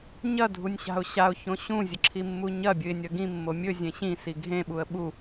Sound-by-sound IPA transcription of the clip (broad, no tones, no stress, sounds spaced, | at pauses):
ɲ ɐ dʱ u nʲ ɕ a̤ ʊ̯ ɕ a ʊ̯ ç õ ɕ ũ zʲ ɨ ǁʰ i mː u ɲ ɐ bʲ ɨ ɪ̯ nʲ ɐ ɡ ĩ mː o mʲ ɵ zʲ ẽ ɕ ĩ s i ɡʱ ẽ ɓ u ə̯ ɓ u